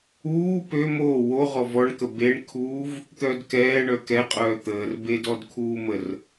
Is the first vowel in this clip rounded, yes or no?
yes